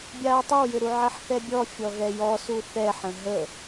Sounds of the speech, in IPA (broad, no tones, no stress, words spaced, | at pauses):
bʲaːtˤəwjʏɾu ʕɐħθɛbʲɔ fʲɔɣɛjɔsu θɛħə̃ ɦə